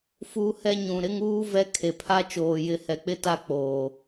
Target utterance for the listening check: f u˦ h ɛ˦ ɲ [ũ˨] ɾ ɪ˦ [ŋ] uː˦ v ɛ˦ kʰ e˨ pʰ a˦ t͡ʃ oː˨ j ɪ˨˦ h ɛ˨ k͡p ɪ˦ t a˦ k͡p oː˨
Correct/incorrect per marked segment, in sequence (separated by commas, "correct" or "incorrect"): correct, correct